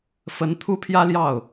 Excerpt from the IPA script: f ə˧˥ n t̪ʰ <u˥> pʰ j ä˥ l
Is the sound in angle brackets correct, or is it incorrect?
correct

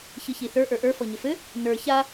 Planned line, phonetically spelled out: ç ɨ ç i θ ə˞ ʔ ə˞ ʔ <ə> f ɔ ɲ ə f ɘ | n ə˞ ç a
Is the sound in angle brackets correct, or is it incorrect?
incorrect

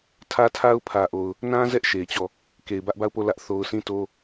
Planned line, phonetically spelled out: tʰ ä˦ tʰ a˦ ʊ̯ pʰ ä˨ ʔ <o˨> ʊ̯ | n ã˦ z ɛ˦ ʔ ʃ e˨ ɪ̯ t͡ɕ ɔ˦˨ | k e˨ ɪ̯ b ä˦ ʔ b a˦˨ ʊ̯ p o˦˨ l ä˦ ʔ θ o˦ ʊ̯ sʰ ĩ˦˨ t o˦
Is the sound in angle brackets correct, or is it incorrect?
correct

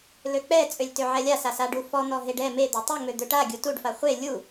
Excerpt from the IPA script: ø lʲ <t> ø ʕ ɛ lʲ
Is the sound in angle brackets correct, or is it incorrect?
correct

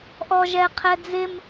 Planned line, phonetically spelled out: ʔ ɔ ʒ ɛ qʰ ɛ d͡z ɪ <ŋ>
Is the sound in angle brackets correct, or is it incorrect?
incorrect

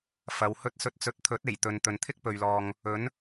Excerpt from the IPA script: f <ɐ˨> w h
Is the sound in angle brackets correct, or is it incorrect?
incorrect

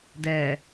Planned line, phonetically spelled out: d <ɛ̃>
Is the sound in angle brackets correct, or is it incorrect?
incorrect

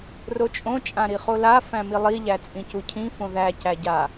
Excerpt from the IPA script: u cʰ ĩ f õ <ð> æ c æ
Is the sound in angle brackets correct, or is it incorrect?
correct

